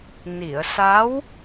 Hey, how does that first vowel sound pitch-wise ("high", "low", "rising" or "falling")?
low